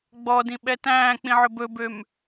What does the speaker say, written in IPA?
ɡ͡b ɔ d ĩ ɓ ɛ t æ̃ː k͡p ĩ ʕ ɵ b ɵ b ø m

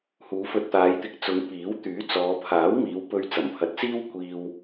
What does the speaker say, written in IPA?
h uː˨˧ f ɵ˧ t̚ t̪ aː˨˧ j t̪ ɪ˨ k̚ t͡s ʊ˨˧ ŋ p iː˨˥ w t̪ yː˨˥ t͡s ɔː˨˧ pʰ aː˨˥ w m iː˨˧ w p ɵ˧ ɥ t͡s ɐ˨˩ m pʰ ɐ˨ t̚ t͡s iː˥ w kʷ iː˧ w

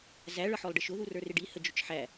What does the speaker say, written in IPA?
z æ ɭ ʌ ħ ɔ lˠ ɖ ɪ ʃ ʊ ð u r ə˞ r ɪ ɖ i h ə d͡ʒ ʊ t͡ʃ ħ æ

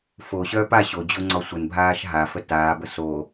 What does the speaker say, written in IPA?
f o ɕ œː p a ɕ o d͡ʑ o ŋ͡ǀ ɒ sʷ ə n bʱ aː ʃ ɦ a f ə t aː b ə s o

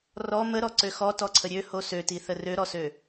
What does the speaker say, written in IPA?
r ɔ m ə ɾ ɔ ǀ ø x ɔ t ɔ ǀʰ ə ɾʲ ø h o s ø t i θ ə r ø ɾ ɔ s ø

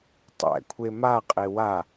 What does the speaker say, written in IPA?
tˤ ɛ̰ kʷʰ e m a qʼ e w a

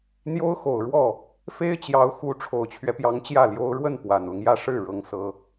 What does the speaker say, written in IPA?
n̪ j o˥ ʊ̯ x o˨˩ ʊ̯ ɻ w ɔ˥˩ | f e˥ ɪ̯ t͡ɕ j ɑ˧˥ ʊ̯ x u˧˥ ʈ͡ʂʰ o˨˩ ʊ̯ t͡ɕʰ ɥ ɛ˦ p j ɑ˧˥ ŋ t͡ɕ j ä˥˩ l j o˥ ʊ̯ ɻ w ə˥˩ n p w a˨˩ n l ʊ˦ ŋ j ä˥˧ ʂ ɻ̩˥˩ ɻ ɤ˥ ŋ s ɤ˥

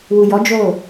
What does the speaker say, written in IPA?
w u˨ j ɔ˨˦ d͡ʒ o˦˨

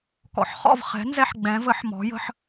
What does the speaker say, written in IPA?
k ɔ̰˩˥ ħ χ ɔ̰˥˩ v χ ɛ̤˩˥ n z ɛ˦ ħ ɡ͡b ɛ̃˩˥ v ə˩˥ ħ m ɔ̤˩˥ j ə̤˦ ħ

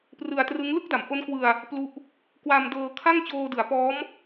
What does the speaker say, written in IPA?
p r ɯ˧ a̯ t r ɯ˦˥ ŋ l ɯ˥˩ k̚ d a˩˦ m ʔ o˦˥ n k w ɯ˧ a̯ | p l u˦˥ ʔ | k w a˧ m d ɤː˧ kʰ a˥˩ ŋ t͡ɕ oː˧ d ɯ˩˦ a̯ p ɔː˦˥ m

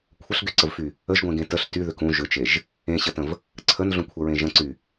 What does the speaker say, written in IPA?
kʷʰ ə ɬ ɡ y ǀ ə v f y | ə ʒ ɡʷ ẽ ɡ ẽ t ə ɬ t y ð ʏ k ũ ʒ ʏ t͡ʃ e ʒ | ẽ ɕ ə t ə̃ v | ǀʰ ə n ɮ ũ kʷʰ ə ɹ ẽ ʒ ə̃ ǀ y

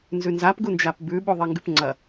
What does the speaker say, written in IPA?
n z ʉ n z a p ɡ u n d͡ʒ a p b ʉ ɓ u ðˤ e ŋ ɡ ʉ p ŋ͡ǀ ɐ

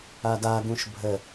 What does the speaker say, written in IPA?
a d a ɡ ũ ʃ bʱ ə

